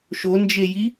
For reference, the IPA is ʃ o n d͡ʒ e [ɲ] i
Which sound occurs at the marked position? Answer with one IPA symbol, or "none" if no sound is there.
j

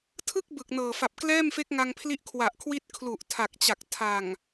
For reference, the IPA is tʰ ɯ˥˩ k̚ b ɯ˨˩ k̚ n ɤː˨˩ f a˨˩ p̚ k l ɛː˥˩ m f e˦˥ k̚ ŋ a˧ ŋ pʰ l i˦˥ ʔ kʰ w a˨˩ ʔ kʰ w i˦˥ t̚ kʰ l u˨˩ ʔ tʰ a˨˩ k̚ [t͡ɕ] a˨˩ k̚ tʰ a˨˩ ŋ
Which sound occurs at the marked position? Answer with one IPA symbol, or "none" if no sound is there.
t͡ɕ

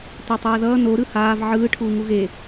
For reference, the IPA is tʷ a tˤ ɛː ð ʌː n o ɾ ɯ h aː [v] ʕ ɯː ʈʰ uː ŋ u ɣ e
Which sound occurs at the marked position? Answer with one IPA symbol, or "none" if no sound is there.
v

